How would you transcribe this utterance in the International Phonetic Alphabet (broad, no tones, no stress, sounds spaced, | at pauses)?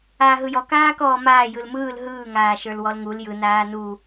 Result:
aː ɦ ɯ j ɔ k aː k ɔː m aː j ɯ l m ɯː l ɦ ɯː ŋ aː ʃ ə˞ l w ɔ l ŋ u l j ɯ n aː n u